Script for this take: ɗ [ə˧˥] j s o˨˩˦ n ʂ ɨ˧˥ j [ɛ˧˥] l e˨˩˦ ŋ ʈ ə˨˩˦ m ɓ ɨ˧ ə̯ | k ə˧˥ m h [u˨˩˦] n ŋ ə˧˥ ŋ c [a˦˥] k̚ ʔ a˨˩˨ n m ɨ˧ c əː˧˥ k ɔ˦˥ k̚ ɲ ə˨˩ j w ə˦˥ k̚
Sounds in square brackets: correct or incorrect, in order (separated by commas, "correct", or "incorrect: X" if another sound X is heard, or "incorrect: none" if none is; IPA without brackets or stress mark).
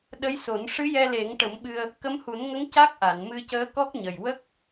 correct, incorrect: ɛ˧, correct, correct